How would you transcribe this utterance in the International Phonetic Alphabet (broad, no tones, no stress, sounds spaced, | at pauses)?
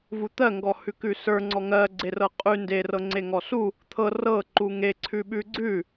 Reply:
v u t̪ ɜ ŋ ɡ ɔ h ʉ k ʉ s ə˞ ŋ͡ǀ ɔ ŋ ɜ ɡ͡ǀ e r ɤ qʼ ʉ n d e r ɤ ŋ͡ǀ e ŋ ɔ s u | t̪ʰ ɤ r ɤ ǃ u ŋ e ǀʰ ʉ ɓ ʉ ɡ͡ǀ ʉ